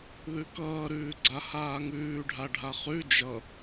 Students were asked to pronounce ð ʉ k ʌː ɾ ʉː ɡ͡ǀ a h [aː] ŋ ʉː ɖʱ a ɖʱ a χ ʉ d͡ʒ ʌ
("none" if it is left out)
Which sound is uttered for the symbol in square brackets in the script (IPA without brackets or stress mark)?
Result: aː